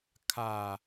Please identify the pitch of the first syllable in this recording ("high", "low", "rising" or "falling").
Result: low